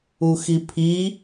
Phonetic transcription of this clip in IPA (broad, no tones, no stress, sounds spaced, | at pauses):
u x i pʰ i